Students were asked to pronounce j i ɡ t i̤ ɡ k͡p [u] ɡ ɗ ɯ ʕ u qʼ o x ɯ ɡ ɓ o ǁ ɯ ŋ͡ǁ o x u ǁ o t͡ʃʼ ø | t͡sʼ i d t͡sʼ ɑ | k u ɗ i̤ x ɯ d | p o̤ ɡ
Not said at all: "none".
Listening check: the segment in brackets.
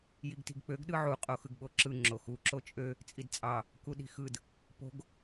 ø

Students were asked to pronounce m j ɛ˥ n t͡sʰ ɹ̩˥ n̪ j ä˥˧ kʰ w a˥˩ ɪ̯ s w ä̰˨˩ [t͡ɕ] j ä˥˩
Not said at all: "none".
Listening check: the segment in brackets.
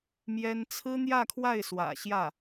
ɕ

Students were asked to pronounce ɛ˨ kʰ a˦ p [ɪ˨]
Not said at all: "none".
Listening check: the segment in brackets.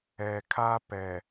ɛ˨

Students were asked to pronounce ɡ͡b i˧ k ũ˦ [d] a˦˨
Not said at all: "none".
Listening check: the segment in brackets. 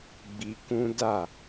d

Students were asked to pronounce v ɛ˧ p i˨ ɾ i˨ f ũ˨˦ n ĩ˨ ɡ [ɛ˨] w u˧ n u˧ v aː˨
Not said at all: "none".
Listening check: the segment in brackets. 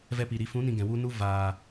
ɛ̃˨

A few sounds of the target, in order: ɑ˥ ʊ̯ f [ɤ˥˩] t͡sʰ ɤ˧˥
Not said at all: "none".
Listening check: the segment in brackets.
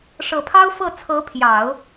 ɤ˥˩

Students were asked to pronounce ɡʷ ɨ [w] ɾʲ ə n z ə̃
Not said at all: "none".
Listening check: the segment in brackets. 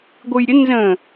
j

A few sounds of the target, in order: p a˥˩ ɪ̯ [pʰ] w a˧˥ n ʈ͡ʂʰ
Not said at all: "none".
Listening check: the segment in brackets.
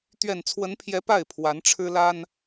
pʰ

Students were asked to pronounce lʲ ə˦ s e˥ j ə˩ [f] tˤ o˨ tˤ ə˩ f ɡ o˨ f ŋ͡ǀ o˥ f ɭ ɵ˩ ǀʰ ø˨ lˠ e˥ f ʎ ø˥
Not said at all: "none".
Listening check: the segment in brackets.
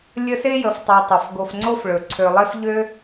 f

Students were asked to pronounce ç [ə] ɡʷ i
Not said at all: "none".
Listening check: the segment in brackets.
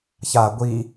a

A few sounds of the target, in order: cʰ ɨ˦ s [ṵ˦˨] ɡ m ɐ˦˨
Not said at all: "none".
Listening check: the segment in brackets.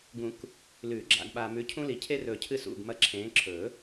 ṵ˦˨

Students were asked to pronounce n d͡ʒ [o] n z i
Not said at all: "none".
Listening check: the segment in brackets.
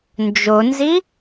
o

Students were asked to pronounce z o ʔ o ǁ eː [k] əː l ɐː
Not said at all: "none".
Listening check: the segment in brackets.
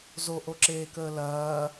k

